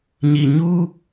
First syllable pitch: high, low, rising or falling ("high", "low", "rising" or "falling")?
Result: low